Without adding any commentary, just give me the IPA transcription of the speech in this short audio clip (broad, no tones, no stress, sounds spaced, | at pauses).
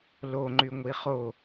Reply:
l o ŋ͡ǃ y ŋʷ i χ o